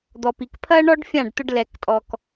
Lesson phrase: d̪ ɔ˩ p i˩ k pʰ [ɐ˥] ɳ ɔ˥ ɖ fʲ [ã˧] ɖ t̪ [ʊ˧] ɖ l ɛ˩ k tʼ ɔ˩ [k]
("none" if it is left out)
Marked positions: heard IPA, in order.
ɐ˥, ã˥˩, ʊ˧, k

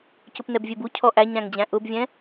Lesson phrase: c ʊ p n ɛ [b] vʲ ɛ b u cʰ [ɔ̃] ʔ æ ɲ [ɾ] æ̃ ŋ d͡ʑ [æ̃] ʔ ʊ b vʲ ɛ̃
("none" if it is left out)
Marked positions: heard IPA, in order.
b, ɔ, ɾ, æ̃

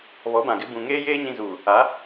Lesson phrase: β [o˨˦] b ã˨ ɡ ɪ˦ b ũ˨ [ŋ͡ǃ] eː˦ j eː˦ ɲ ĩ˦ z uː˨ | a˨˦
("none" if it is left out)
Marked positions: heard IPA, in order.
ɔ˨˦, ŋ

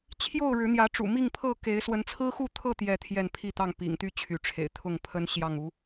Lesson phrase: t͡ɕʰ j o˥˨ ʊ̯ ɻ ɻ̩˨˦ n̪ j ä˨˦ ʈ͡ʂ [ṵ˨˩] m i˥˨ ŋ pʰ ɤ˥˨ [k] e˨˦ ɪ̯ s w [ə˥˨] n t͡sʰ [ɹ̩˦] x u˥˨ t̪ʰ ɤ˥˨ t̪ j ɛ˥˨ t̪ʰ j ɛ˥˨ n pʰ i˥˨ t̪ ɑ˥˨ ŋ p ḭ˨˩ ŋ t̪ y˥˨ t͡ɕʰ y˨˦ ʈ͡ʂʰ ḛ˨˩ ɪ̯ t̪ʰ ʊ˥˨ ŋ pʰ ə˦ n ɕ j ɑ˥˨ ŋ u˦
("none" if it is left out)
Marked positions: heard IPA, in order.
ṵ˨˩, k, ə˨˦, ɹ̩˦

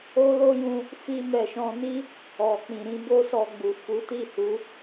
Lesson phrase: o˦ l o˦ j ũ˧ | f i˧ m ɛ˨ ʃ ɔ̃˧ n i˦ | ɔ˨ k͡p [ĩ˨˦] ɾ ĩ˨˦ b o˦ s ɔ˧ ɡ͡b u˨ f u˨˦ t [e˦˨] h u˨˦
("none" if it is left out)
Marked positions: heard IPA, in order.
ĩ˨, i˦˨

